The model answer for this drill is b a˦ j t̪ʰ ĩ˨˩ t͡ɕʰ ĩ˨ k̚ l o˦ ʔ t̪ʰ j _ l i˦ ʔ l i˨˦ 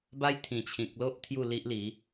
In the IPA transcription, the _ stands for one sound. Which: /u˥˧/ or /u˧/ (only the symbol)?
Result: u˥˧